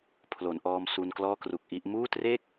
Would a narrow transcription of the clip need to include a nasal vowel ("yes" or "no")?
no